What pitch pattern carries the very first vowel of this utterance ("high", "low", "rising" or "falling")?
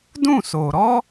falling